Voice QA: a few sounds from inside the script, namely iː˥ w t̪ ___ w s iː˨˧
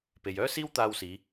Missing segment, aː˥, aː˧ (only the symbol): aː˧